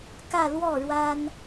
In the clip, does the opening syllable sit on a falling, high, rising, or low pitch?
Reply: falling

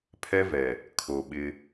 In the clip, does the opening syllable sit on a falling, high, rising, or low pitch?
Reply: high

